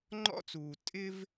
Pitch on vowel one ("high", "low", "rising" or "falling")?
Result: high